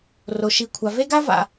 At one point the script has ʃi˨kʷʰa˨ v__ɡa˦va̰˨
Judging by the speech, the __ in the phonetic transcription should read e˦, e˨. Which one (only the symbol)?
e˦